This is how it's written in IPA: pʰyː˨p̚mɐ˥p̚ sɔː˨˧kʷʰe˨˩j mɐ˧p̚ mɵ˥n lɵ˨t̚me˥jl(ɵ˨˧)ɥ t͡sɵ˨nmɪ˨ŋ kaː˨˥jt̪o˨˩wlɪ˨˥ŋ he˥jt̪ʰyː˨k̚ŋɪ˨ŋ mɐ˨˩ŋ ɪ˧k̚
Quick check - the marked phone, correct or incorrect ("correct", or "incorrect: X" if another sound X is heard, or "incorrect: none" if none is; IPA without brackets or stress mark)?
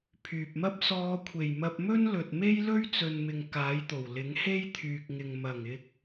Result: incorrect: ɵ˥